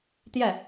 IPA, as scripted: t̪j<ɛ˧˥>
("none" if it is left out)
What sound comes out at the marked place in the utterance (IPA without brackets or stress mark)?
ɛ˥˩